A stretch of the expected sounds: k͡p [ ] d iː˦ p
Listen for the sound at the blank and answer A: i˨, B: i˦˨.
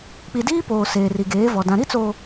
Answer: A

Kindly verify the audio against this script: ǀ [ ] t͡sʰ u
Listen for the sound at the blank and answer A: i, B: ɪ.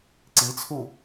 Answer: A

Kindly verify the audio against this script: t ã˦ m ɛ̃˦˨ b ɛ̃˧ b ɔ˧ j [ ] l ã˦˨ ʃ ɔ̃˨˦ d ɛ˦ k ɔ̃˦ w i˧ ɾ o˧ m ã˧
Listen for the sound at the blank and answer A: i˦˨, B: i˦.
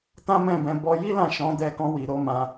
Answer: B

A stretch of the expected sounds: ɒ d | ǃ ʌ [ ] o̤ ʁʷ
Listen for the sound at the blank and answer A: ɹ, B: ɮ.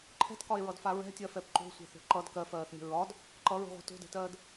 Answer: A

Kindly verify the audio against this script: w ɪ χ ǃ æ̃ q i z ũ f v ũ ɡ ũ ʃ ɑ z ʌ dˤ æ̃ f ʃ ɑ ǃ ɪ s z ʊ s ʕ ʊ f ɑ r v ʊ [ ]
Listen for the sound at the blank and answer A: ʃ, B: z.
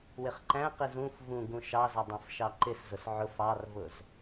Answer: B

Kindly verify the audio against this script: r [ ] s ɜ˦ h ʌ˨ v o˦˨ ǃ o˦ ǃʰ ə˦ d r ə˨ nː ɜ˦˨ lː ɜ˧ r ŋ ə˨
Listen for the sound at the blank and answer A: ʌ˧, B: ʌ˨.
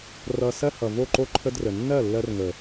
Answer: A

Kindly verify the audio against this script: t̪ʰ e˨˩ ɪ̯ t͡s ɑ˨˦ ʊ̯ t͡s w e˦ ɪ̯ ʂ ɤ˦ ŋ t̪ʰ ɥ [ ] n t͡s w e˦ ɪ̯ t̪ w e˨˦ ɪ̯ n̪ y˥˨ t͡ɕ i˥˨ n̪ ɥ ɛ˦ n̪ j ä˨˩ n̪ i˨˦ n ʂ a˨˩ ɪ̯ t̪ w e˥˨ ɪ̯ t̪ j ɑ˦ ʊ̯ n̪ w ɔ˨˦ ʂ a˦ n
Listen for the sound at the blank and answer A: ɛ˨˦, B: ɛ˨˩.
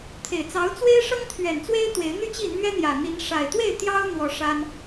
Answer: B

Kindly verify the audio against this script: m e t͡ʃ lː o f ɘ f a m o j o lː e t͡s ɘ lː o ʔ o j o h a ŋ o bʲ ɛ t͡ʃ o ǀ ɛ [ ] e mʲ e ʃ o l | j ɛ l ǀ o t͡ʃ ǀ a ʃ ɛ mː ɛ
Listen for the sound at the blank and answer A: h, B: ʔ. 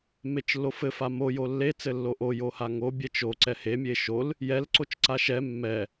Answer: A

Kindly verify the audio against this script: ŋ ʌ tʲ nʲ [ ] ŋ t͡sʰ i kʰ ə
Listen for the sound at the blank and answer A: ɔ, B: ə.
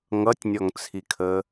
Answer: A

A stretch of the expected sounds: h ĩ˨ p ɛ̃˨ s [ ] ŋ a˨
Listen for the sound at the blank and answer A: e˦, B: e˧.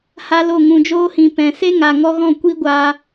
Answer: A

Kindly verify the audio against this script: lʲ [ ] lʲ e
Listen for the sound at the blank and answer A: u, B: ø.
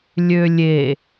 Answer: B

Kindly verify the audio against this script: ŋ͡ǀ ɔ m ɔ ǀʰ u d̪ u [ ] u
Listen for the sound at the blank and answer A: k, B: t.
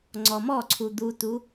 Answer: B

